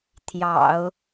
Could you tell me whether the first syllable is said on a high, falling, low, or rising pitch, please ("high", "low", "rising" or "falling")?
low